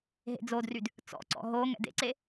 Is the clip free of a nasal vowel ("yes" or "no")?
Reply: yes